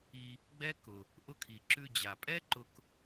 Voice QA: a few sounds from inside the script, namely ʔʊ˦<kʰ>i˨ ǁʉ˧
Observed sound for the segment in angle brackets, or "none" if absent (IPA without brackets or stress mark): kʰ